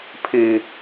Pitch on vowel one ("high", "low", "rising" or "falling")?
low